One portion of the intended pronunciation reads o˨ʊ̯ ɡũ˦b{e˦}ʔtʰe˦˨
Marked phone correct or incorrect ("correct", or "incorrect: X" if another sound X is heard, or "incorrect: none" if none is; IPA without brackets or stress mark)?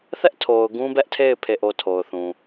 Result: incorrect: ɛ˦